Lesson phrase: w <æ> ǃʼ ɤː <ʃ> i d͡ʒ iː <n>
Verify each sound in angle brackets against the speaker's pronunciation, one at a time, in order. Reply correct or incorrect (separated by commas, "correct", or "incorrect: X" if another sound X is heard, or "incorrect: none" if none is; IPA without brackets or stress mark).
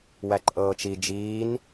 correct, incorrect: t͡ʃ, correct